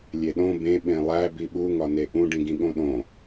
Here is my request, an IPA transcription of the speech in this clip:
lʲ e ɗ õ b ẽ ɓ ẽ lˠ æ b i ɓ u ŋ ɒ n e ʔ ũ ɖ ĩ ɡ ĩ ɠ õ ɗ õ

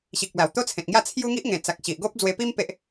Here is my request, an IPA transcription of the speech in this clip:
ɕ i˨ k̚ l a˨˩ w t̪ o˦ t͡sʰ ẽ˨ t̚ ŋ j a˥˧ t͡sʰ j u˦ ŋ i˦ ʔ ŋ ẽ˨˩ t͡s a˨ k̚ ɕ i˨ ʔ ɡ o˦ p̚ d͡z w e˧ p i˦ m p e˦ ʔ

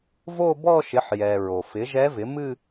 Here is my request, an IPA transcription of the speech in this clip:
v o˥˧ b ɔ˥˧ ʃ ɪ˩˥ ħ j ɛ˩ ɹ o˩ f ɪ˩˥ ʒ ɛ˧˥ v ɪ˩˥ m ɨ˥˧

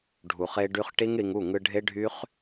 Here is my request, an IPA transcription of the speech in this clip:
ɖʱ u˨ χ e˧ ɖ y˧ χ ʈ i˦ ŋ ɽ i˧ ŋ u˦˨ ŋ ɯ˧ ɖʱ e˦ ɖʱ y˦ χ

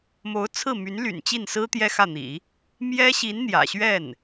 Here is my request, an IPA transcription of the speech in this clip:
m o˧˥ ʊ̯ t͡sʰ ɹ̩˥˩ m y˧˥ n l y̰˨˩ n t͡ɕ i˥˩ n s ɹ̩˥ t̪ j ɛ˥ x ä˥˩ n̪ ḭ˨˩˦ | m j ɛ˥ ɕ i˧˥ n n̪ j ä̰˨˩ ɕ ɥ ɛ˥˩ n

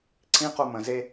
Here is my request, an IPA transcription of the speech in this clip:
ǀʰ ĩ q o m ə̃ z e

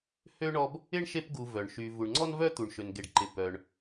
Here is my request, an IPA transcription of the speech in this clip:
h ø˥ ɳ ɔ˦ b | ɪ˥ ɳ ʃ e˦ p ɡ u˨ v œ˩ ɳ ʃ y˨ v u˨ ɳ ŋ͡ǀ ɔ˥ n v œ˥ t̪ u˨ ɳ ʃ ø˨ n ɡ e˨ ɖ ǃ ɪ˨ p œ˨ ɳ

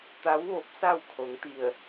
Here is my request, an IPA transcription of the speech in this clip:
t̪ a˧˥ w ʋ o˧˥ p̚ s a˥˨ w kʰ o˧˥ ŋ t̪ i˥˨ ə̯

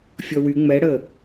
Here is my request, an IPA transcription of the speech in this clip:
fʲ ɔ w y ŋ͡m ɛ ɽ əː

